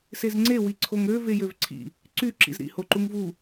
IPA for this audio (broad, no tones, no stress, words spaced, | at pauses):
sezŋ͡ǀe wiǀʰoŋɾø vejøvǀʰḭ | ǀy ǁḭzɾḭ hoǃuŋvu